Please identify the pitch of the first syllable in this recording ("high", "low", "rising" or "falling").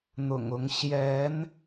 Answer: low